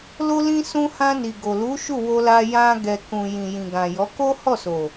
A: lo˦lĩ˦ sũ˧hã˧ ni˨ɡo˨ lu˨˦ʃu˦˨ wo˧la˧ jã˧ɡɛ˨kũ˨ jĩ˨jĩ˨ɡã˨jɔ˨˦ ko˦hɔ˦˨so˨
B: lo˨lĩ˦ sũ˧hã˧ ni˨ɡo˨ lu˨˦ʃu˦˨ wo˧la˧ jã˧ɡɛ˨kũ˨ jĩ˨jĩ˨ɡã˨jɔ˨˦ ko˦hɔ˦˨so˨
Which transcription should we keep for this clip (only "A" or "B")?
A